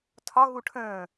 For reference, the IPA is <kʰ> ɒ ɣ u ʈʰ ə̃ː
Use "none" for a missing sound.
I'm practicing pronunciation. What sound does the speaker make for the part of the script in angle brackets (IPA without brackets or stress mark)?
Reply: tʰ